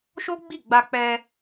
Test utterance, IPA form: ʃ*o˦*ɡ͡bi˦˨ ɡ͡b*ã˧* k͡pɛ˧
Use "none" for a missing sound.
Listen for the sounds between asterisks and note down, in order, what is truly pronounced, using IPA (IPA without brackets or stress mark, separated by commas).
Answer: o˦, a˧